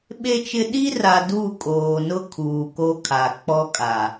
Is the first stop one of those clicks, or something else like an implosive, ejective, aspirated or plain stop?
implosive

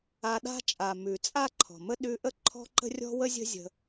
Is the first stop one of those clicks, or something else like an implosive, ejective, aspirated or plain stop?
implosive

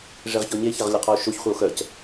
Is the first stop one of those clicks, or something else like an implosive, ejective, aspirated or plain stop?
aspirated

